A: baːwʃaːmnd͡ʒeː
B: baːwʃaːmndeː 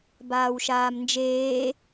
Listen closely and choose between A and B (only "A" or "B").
A